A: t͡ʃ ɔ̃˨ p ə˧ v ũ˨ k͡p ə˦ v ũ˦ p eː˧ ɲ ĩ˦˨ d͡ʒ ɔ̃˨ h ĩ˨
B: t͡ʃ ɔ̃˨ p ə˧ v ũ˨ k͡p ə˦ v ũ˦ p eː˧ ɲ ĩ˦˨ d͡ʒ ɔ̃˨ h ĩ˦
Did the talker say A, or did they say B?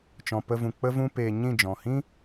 B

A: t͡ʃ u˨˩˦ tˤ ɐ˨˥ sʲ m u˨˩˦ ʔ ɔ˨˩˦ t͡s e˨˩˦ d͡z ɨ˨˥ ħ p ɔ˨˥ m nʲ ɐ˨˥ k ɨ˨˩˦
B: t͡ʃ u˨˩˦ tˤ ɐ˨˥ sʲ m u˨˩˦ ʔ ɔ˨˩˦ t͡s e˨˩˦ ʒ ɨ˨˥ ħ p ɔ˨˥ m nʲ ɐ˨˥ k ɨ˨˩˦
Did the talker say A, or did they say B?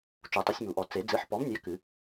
A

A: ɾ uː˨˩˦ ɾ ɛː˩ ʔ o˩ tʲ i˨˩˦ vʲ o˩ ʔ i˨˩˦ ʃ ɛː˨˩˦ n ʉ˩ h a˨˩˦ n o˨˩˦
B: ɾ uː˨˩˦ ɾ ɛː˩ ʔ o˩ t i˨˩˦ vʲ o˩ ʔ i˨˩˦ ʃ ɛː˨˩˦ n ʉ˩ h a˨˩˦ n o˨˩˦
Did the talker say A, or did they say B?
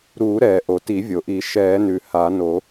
B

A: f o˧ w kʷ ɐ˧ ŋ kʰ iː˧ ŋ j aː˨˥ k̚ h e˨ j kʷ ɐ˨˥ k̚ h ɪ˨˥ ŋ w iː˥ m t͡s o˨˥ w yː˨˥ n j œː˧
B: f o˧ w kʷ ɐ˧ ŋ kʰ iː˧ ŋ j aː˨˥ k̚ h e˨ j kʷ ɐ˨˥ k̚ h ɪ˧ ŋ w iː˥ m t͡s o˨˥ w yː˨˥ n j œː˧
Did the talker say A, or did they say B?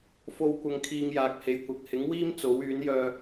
A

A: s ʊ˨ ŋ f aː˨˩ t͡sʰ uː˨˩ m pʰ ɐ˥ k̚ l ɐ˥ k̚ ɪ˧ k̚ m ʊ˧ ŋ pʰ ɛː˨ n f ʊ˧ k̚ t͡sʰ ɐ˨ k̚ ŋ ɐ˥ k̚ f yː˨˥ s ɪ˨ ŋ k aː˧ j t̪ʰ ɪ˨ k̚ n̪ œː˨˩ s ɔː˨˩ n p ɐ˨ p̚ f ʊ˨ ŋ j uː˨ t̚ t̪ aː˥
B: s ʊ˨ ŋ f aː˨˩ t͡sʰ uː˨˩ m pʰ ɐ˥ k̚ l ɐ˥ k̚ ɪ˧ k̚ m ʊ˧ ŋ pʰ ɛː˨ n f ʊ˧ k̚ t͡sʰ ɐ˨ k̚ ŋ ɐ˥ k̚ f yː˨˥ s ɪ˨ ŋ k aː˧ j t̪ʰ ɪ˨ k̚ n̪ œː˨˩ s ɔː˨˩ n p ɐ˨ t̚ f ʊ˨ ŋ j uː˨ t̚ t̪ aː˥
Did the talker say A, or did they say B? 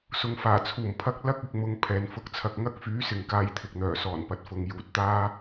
B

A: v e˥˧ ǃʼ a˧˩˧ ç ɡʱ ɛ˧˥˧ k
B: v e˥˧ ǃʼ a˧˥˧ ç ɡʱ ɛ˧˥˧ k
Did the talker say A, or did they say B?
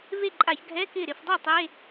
A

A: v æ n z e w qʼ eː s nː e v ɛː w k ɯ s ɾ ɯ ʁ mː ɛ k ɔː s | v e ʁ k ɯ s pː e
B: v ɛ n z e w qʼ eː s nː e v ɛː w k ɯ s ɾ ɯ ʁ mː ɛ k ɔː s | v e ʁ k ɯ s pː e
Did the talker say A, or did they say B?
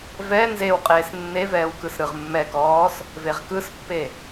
B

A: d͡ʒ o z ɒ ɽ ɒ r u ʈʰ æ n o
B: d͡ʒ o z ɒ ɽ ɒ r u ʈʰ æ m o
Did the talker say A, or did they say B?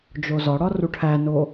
A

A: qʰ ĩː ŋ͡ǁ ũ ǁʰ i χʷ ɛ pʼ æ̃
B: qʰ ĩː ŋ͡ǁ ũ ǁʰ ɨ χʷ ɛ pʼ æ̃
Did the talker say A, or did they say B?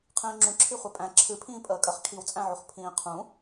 A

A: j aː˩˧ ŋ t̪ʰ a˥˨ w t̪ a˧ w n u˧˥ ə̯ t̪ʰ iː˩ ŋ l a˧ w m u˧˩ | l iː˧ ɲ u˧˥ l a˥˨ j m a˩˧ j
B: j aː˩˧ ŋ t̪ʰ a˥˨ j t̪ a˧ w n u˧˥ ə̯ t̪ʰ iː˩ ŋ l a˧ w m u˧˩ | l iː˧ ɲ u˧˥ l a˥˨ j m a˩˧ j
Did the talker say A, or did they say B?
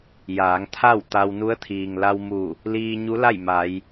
A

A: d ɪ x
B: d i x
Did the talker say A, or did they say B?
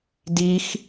B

